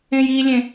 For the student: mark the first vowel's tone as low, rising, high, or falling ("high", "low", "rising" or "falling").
high